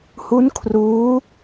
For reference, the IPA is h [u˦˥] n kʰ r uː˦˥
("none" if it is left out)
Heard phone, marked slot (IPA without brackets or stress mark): u˦˥